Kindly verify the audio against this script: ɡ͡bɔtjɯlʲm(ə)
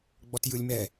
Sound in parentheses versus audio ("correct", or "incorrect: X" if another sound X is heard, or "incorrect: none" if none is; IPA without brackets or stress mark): incorrect: ɛ